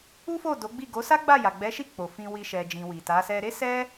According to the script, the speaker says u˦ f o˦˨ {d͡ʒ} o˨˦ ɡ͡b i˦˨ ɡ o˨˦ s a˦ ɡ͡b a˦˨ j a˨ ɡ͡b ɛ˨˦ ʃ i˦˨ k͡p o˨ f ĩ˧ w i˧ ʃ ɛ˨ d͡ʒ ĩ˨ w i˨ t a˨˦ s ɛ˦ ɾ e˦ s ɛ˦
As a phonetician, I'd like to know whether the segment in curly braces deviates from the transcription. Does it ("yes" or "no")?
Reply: yes